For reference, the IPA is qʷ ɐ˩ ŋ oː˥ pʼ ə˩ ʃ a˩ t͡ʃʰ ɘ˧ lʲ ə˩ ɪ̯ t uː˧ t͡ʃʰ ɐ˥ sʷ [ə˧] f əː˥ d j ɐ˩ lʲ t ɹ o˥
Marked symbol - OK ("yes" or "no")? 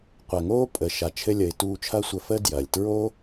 yes